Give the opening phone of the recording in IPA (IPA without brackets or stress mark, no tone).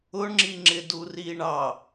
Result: ʊ